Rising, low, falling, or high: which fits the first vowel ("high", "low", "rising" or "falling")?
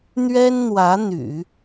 high